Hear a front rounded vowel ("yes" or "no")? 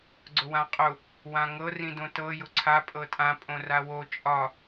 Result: no